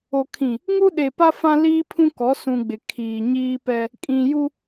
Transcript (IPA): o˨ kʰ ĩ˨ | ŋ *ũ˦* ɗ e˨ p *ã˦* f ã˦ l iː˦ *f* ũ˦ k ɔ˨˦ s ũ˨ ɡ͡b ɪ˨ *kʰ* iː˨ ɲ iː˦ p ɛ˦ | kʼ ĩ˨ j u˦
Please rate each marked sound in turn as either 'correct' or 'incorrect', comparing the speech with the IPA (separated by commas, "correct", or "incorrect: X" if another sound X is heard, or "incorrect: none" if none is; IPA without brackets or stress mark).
incorrect: u˦, incorrect: a˦, incorrect: pʰ, correct